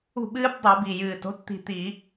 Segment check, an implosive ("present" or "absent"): present